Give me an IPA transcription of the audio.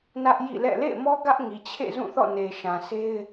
nä˦ʔjḭ˦˨lɛ̰˦˨ lḛ˦˨ɪ̯mɔ˦ ɡä˦ʔŋi˨t͡ɕʰḛ˦˨zũ˦˨ θɔ̰˦˨ne˨ʃã˨ sʰe˦ɪ̯

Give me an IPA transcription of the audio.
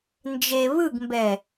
nd͡ʒe βɯɡmbɛ

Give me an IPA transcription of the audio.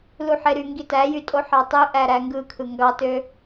luħeɾy ŋɡitæjy tʼoħɑtˤøʔæ ɾæŋɡɯ kʰɯŋɡɑtø

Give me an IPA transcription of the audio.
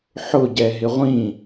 ħʊ ɟɛɦɪʁʷĩ

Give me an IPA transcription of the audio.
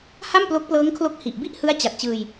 ha˥˩mplo˦˥k̚plɤː˦˥ŋkʰlo˦˥k̚ hi˨˩ʔ bi˥˩ʔhɯ˦˥a̯ t͡ɕa˨˩t̚t͡ɕɯː˧j

